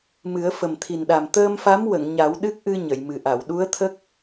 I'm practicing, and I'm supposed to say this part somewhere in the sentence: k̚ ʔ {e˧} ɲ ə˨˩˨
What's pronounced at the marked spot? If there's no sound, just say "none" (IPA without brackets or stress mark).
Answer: ɨ˧